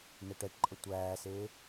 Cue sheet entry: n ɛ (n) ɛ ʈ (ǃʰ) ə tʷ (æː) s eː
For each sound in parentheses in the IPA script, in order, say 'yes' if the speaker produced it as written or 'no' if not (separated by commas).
no, no, yes